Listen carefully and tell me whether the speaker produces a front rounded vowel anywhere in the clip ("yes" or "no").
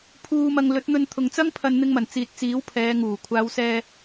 no